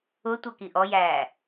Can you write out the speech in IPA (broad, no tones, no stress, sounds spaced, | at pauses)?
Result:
ʊ tʷ ʌ k i ʔ ɔ j æː